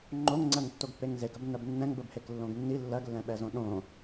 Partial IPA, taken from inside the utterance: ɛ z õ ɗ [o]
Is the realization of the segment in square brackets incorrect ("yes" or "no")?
yes